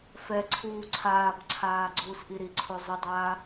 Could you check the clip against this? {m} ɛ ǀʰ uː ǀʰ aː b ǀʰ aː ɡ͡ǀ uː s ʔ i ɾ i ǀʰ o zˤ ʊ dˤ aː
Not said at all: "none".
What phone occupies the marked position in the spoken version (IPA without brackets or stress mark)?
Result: f